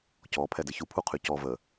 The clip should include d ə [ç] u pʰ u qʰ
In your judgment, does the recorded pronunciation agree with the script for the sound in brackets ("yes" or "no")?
yes